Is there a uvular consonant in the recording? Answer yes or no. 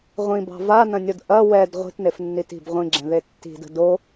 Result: yes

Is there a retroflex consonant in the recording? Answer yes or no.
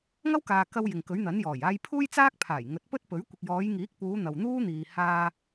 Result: no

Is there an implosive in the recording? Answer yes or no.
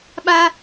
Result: yes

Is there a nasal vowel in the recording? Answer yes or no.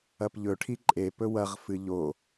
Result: no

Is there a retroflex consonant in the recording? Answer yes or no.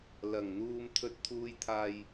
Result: no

